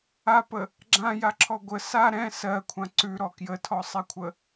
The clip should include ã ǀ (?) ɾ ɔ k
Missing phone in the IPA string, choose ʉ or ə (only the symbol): ʉ